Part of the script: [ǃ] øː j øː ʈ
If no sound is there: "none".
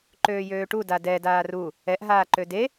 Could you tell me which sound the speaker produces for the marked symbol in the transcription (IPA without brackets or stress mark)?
ǃ